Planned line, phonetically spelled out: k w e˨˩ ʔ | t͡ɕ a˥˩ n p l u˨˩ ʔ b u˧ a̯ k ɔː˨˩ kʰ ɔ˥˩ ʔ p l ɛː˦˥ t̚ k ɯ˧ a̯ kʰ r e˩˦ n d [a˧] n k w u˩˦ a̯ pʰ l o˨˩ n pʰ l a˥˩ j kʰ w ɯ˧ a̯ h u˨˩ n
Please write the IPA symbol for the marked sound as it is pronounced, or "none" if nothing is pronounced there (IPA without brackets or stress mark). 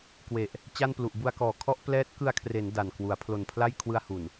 a˨˩